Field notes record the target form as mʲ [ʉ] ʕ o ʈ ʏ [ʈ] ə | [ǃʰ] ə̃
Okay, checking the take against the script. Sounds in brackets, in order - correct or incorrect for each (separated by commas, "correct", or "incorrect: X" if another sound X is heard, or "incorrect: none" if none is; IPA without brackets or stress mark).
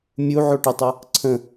incorrect: u, incorrect: tˤ, incorrect: ǀʰ